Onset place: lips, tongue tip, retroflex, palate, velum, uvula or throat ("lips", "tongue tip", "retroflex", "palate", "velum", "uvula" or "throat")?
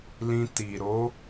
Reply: tongue tip